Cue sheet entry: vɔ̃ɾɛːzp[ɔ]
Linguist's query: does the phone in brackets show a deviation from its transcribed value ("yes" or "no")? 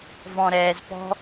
yes